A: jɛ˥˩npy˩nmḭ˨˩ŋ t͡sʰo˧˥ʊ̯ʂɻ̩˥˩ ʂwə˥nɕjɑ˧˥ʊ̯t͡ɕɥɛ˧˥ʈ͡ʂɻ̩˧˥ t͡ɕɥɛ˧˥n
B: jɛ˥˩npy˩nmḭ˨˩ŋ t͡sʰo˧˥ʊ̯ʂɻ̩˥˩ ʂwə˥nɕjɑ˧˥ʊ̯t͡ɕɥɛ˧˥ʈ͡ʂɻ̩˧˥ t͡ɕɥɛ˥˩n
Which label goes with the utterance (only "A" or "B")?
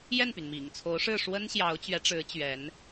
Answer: A